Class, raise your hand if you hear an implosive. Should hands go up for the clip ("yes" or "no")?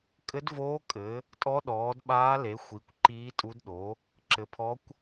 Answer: yes